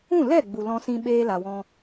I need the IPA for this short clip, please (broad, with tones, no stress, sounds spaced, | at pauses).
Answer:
ũ˦˨ l ɛ˦˨ ɡ͡b u˨ l ɔ̃˧ s ĩ˧ ɓ eː˦ l a˨ w ɔ̃˧